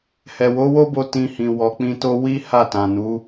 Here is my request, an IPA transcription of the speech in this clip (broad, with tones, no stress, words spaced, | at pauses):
hɛ˨wo˨˦wo˦bo˧ tĩ˨ hĩ˨wɔ˨k͡pĩ˧to˦ wi˦ ha˦˨tã˨ nu˨˦